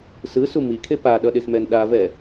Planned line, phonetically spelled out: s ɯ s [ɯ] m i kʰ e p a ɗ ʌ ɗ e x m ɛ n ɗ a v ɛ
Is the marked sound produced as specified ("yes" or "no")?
no